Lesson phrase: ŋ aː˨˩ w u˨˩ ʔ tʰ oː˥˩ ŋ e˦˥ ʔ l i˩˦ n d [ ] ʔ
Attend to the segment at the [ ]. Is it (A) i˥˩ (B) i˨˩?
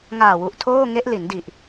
B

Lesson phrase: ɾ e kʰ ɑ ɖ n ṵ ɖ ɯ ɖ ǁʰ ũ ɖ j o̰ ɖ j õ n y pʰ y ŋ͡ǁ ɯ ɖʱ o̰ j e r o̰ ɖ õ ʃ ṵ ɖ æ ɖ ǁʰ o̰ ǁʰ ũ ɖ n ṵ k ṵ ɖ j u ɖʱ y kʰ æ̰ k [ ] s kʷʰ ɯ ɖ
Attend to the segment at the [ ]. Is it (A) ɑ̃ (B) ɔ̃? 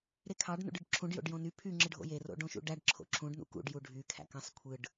A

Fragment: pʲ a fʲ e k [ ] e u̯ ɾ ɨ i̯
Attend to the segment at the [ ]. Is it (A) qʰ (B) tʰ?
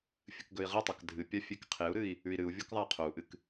A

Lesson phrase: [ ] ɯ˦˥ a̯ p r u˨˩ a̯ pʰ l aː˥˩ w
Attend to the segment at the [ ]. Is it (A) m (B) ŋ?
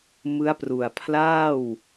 A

